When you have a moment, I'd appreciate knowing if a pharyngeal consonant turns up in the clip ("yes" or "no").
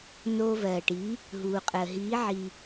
yes